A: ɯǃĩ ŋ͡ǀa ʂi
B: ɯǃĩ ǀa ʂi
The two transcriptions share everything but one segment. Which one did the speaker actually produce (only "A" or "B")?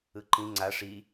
A